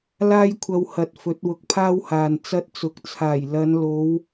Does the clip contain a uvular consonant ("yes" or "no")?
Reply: no